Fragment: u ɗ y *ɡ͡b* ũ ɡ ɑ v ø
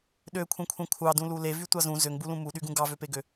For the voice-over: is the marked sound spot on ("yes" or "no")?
no